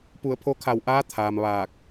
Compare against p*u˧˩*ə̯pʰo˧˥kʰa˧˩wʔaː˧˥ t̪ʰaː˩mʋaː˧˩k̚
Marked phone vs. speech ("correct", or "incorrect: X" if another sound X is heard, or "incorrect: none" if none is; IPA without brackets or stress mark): correct